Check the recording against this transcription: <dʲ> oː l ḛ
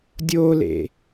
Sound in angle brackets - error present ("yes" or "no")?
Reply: no